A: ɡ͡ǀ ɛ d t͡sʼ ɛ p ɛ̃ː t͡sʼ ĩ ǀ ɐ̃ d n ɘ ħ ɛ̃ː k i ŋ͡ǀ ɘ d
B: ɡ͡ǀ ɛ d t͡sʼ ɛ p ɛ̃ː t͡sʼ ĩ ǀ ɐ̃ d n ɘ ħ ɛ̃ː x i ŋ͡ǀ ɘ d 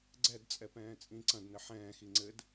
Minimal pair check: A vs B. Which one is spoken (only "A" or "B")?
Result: B